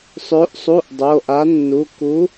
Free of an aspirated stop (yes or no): yes